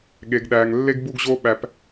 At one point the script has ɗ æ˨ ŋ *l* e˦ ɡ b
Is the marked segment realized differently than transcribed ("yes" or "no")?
yes